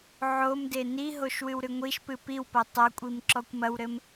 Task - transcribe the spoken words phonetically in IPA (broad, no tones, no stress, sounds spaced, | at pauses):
ʕ o m d e n i ɦ o ʃ w ɨ w ɾ ɨ ŋʷ i ʃ p ɨ p i w p ɐ tˤ ɐ kʷʼ i m ǁ ɔ kʷ m ɐ w ɾ ɘ m